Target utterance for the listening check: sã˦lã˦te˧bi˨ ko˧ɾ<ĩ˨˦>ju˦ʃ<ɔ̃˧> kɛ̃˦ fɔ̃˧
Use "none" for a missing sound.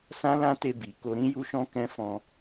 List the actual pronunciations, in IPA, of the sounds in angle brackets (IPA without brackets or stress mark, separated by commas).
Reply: ĩ˦, ɔ̃˦